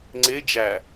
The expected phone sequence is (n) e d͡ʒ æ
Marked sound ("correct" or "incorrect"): incorrect